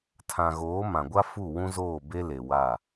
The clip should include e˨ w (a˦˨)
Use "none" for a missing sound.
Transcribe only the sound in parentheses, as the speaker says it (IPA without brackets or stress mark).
a˦˨